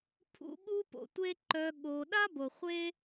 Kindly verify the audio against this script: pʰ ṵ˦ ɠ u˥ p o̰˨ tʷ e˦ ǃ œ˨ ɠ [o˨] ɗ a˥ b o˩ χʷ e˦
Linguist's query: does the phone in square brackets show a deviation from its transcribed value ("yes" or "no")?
no